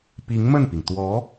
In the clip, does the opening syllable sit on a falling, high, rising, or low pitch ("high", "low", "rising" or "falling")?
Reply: rising